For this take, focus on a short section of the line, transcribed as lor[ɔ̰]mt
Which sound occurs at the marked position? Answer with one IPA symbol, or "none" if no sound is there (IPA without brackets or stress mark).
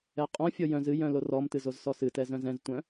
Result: ɔ